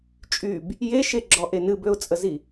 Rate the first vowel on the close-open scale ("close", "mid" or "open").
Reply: close